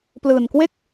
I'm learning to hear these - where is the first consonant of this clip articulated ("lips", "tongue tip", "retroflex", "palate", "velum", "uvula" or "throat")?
lips